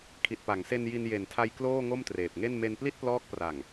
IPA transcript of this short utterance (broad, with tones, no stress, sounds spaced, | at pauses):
kʰ i˨˩ t̚ p a˩˦ ŋ s e˧ n j i˧ n j e˨˩ n tʰ a˧ j k l oː˥˩ ŋ o˥˩ m t r eː˨˩ p̚ ŋ e˥˩ n m e˧ n p l i˥˩ t̚ p l ɔː˦˥ k̚ p r a˨˩ ŋ